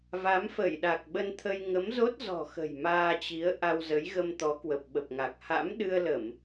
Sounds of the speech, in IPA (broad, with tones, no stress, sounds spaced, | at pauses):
v a˨˦ m f ə˧˩ j ɗ a˨˩ k̚ ɓ ə˧ n t̪ʰ ə˧ j ŋ ə˨˦ m z o˦˥ t̚ z ɔ̤˨˩ x ə̤˨˩ j m aː˧ t͡ɕ i˨˦ ə̯ ʔ a˧ w z ə˨˦ j ɣ ə˧ m t̪ ɔ˨˦ k w ə˨˩ p̚ ɓ ə˨˩ p̚ ŋ a˨˩ k̚ h a̰˧˥ m ɗ ɨ˧ ə̯ l ə˧˩˨ m